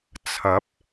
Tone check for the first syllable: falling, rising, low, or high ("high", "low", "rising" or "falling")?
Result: rising